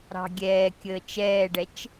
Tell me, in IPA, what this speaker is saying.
ɾ ɑ̤ ɡʲ ɛː kʲ əː t͡ʃ ɛː ɖ ɛ t͡ʃ

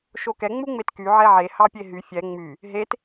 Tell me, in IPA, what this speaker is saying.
ʃ o k ɛ ŋ͡m u ŋ͡m e t k y ʕ ɛ ʕ e h ɑ pʲ e ɦ y fʲ ɛ ŋ͡m y | ɦ e t

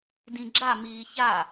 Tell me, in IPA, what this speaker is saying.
d ĩ ɡ͡ǁ a m iː ç a

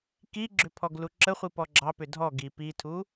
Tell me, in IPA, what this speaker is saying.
k i ɡ͡ǁ ʏ pʰ ɔ ɡ l u ǁ ə χʷ i p ɔ ɡ͡ǁ ɑ p ʏ dʱ ɔ ɡ i p i tʰ u

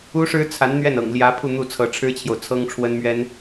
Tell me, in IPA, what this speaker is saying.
u˥ ʂ ɻ̩˥ t͡sʰ a˧˥ n n̪ ɥ ɛ˥˩ n ɤ̰˨˩ ŋ l j ä˧˥ pʰ u˥˧ n̪ u˥˩ t͡sʰ ɤ˧˥ ʈ͡ʂʰ ɻ̩˥ t͡ɕʰ j o˨ ʊ̯ t͡sʰ ɤ˥ ŋ ʈ͡ʂʰ w ə˥ n m ɥ ɛ˥ n

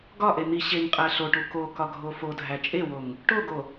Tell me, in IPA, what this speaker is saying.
ɡ ɒ ʔ e n̪ i ɕ e ŋ qʼ æ ɬ o ʈ u k o k ɒ ɡʱ o f o dʱ æ t͡ʃʼ e w o ŋ | ʈ o ɡ o

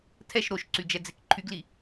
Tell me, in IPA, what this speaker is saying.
tʰ ɛ ʃ ɾ o ʃ ǀ y d͡ʒ ɛ d͡z e k ǃʰ y ɡ l i

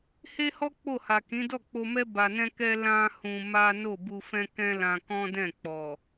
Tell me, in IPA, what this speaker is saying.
h e˦ h ɔ˦ k͡p o˦˨ h a˨ k ĩ˨˦ d ɔ˦˨ k͡p o˧ m ɛ˦ b a˧ n ɛ̃˦ k ɛ˦ l ã˦ h ũ˧ m a˦ n o˦˨ b u˧ f ɛ̃˦ k ɛ̃˦ l ã˧ k ɔ̃˦ d ɛ̃˦˨ k͡p ɔ˨

